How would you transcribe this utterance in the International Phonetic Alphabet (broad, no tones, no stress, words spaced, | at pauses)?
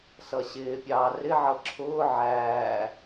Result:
sʌɕɪːpʲɑː rɪʕʌ ǁʰʊː ʕæː